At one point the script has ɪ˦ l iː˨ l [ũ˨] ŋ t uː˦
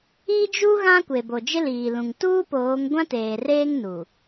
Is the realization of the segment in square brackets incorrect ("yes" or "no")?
no